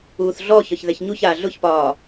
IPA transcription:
uː θ ɮ ɔ ç ɒ ç ð ɛ ç ɲ u ç aː ɮ ʊ ç p ɒː

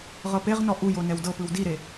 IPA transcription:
ʁ ɤ p e ʁ n ɔ ʔ u j o n ɛ w d ɤ p ɯ w d i ɾ e

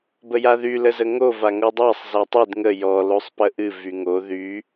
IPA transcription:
b ə j a ð y l ə z ə ŋ o v a ŋ o dˤ æ sˤ z a tˤ ɨ d ŋ ə j ɔ l o sˤ p ə ʔ ɨ v y ŋ o ð y

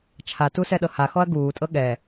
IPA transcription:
t͡ʃʰ a t u s ɛ ɗ ɤ h a x ɔ ɐ̯ ɡ uː tʼ ɤ ɠ ɛ

